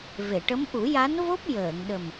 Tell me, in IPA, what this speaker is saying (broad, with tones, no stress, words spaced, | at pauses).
ve˨˩˨ʈə˧˥m ʔu˨˩˦ja˧˥nvo˦˥p̚ jəː˨˩˨ŋɗə˨˩m